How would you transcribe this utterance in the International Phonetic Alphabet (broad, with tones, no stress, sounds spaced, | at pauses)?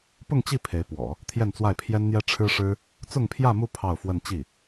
p ʊ˥˧ ŋ t͡ɕ i˥˩ pʰ e˧˥ ɪ̯ p w ɔ̰˨˩˦ | t̪ʰ j ɛ˥˧ n t͡s w a˥˩ ɪ̯ pʰ j ɛ˥ n n̪ j ɛ˥ ʈ͡ʂʰ ɻ̩˥ ʂ ɻ̩˥ | t͡s ʊ˥˧ ŋ pʰ j ä˥˧ m u˥˧ pʰ ɑ˥˧ ʊ̯ f w ə˥˧ n t͡ɕ i˥˩